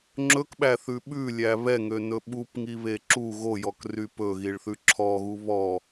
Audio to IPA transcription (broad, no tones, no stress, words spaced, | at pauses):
ŋ͡ǁɵkɓæθʉ ɓʉlʲæ βɛŋønɵ ɓupŋiβe ǁu ɣojɔkry pɵɣiɭθʉ ǁʰɔɣu βɔ